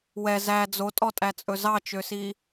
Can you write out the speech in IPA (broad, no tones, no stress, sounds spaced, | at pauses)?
w ɛ z æ d͡z o tʼ ɔ tʼ æ t͡sʼ ɵ z ɑ t͡ʃ ø s i